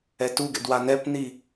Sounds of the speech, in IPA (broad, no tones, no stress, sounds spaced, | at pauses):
ɛ t u ɡ ɛ̰ d w a n ɛ p n i